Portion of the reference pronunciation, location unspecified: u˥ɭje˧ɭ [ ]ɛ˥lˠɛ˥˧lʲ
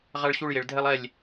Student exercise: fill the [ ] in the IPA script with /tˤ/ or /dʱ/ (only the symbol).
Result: dʱ